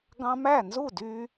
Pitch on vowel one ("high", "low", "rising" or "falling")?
high